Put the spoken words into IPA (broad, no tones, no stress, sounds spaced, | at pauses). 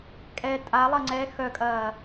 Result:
kʼ ɛ tʼ a lˠ ɐ ŋ͡ǀ ɛ x œ kʼ ɐː